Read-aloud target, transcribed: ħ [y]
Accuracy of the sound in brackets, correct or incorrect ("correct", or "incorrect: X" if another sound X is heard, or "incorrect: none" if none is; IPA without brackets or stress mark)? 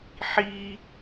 incorrect: i